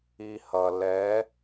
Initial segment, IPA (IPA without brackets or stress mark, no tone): i